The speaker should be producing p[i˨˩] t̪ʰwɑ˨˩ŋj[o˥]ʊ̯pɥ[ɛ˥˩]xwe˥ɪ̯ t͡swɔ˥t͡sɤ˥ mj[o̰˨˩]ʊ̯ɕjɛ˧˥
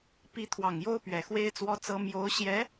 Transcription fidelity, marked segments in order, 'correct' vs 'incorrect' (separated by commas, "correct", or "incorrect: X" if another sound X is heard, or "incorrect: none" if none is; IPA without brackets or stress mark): incorrect: i˧˥, correct, incorrect: ɛ˨˩, incorrect: o˧˥